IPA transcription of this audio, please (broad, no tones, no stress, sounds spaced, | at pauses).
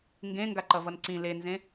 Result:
ŋ ɡ ẽ ŋ ɡ a ǃ ʌ v ʌ n ǀ ĩ l e n z ẽ